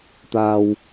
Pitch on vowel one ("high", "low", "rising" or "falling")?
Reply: low